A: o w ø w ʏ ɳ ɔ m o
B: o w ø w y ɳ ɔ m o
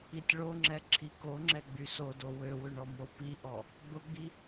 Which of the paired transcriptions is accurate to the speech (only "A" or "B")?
A